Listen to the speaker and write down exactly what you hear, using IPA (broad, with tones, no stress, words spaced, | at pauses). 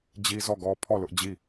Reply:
d͡ʑi˦zɔ˦˨ɡɔ˦ pʰɔ˦˨ lʊ˦ʔd͡ʑi˦˨